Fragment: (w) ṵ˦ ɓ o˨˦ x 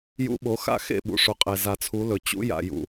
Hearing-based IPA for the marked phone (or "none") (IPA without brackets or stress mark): j